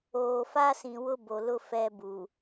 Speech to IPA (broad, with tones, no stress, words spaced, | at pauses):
oː˨fa˦sĩ˨ wʊ˦bo˨lʊ˦ fɛ˦bu˨